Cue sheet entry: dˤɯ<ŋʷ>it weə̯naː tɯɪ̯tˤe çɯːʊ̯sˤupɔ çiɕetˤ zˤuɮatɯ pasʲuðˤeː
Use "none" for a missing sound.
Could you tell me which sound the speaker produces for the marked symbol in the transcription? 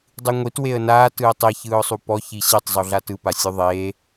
ŋʷ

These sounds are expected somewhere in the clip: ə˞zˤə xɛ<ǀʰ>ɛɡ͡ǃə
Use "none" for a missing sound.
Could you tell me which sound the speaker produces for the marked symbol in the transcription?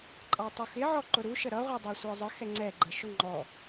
ŋ͡ǀ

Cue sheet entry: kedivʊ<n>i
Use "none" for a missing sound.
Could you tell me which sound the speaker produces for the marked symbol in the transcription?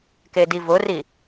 r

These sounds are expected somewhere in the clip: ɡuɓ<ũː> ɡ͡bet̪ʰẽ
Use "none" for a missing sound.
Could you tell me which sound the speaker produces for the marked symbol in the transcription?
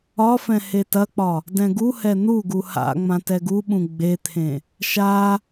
ũ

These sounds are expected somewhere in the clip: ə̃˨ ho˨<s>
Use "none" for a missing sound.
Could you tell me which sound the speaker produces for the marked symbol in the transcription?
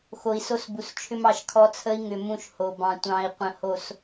s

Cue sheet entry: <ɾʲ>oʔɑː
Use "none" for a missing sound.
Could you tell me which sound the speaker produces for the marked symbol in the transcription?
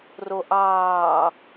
r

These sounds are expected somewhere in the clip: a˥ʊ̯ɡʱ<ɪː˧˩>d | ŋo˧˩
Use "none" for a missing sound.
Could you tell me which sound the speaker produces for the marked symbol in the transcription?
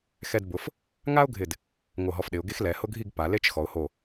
ɪ˧˩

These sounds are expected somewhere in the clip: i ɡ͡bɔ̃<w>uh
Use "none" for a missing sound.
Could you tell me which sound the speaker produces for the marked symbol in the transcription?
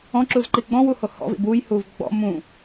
w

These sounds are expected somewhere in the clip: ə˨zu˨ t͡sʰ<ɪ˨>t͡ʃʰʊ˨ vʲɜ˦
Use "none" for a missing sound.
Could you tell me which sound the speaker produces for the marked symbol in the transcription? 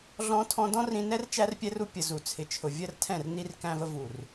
ɪ˨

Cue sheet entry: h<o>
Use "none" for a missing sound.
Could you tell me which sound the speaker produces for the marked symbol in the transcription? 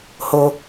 o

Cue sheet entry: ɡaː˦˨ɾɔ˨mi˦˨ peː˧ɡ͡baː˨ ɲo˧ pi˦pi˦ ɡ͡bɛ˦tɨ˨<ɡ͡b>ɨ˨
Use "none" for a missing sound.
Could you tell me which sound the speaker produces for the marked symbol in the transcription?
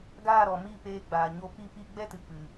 k͡p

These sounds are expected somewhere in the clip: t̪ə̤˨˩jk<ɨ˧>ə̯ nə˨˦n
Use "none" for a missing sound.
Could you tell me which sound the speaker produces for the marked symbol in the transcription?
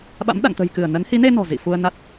ɨ˧˩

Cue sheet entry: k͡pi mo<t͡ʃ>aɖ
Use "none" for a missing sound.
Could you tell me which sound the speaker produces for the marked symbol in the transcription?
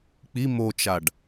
t͡ʃ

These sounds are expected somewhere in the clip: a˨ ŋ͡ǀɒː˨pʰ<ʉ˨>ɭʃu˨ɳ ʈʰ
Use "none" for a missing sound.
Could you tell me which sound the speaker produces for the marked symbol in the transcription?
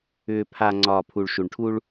u˨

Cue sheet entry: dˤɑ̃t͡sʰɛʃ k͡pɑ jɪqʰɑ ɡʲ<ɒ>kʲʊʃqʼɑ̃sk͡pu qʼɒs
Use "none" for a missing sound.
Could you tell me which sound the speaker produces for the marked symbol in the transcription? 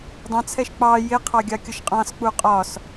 ɑ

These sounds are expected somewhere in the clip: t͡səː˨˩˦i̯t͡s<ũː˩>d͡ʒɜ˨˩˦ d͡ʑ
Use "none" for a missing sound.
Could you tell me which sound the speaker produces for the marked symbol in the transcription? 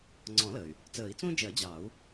ũː˥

